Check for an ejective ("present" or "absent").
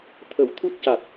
absent